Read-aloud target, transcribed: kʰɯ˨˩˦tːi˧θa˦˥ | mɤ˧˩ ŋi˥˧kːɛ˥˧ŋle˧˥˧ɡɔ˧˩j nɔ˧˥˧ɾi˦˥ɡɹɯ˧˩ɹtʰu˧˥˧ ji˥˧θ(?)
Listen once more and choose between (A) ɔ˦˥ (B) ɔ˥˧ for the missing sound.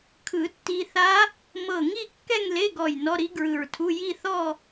B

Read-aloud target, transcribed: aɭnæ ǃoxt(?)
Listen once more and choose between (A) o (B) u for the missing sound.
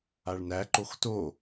A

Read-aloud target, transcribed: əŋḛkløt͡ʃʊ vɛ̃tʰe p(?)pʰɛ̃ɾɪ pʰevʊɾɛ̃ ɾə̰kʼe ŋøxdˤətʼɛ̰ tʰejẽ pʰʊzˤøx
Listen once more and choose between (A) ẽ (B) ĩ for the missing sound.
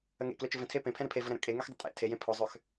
A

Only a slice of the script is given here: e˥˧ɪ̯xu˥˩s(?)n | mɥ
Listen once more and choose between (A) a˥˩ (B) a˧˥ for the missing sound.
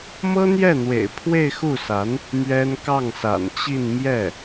B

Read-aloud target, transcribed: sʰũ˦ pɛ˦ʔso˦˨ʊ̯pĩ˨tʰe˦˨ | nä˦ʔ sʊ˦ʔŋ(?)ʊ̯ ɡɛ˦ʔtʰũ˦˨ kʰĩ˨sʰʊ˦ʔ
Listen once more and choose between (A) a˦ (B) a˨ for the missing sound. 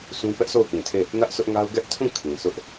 A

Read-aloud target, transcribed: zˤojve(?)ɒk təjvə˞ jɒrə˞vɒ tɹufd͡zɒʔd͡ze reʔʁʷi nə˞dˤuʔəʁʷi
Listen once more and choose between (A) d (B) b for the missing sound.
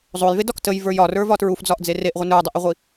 A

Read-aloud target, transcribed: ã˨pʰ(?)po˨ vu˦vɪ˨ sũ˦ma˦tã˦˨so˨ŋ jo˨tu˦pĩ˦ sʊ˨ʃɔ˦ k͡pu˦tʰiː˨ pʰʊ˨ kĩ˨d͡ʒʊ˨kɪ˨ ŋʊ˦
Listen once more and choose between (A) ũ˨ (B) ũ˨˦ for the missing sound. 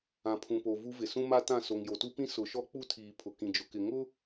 A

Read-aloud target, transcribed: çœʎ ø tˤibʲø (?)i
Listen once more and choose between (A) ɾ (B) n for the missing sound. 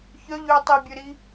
A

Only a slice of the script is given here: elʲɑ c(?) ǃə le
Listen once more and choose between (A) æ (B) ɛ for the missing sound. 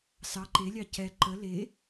B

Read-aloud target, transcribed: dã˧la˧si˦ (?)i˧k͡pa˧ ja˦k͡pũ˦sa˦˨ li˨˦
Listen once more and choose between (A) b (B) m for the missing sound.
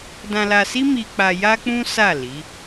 B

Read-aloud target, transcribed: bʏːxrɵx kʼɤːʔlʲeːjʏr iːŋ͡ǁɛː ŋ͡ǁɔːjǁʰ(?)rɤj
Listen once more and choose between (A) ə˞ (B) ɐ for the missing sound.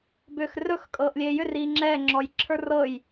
A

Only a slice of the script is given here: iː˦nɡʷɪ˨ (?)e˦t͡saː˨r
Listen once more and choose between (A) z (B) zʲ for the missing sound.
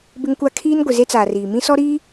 A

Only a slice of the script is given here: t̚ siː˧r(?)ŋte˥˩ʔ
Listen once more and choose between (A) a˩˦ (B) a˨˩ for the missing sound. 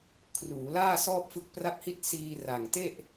B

